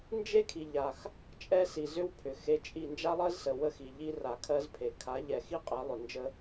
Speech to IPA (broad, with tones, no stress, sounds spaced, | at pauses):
n d͡ʒ e˦ kʰ i˨ ʎ a˨ x | t͡ʃʼ ɛ˦ s i˨ z ʏ˦ w pʰ ʏ˨ x e˧ t͡ʃʼ i˦˨ n d͡ʒ a˦ lˠ ɜ˦ z s ə˨ w ə˧ x i˨ ʎ i˧ r a˨ kʰ ɜ˧ z pʰ e˨ kʰ a˨˦ ʎ ɛ˨ x i˦ qʼ ɛ˨˦ lˠ ʏ˨ n d͡ʒ ə˧